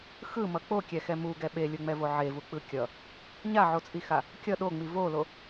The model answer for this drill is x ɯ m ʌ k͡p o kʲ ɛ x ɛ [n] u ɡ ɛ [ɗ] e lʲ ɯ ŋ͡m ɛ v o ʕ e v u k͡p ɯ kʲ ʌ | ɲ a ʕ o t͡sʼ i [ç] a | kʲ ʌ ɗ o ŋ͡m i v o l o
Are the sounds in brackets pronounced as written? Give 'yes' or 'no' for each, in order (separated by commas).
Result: no, no, no